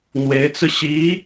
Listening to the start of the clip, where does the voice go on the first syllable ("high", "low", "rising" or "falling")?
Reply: rising